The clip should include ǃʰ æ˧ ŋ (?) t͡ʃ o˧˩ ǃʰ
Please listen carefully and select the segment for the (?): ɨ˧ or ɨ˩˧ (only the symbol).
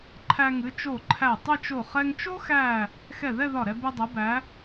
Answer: ɨ˩˧